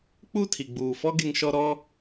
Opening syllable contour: falling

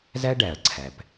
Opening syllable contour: high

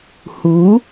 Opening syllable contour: rising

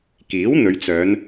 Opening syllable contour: rising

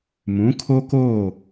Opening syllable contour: rising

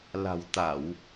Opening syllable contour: low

